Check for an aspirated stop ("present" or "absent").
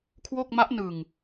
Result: present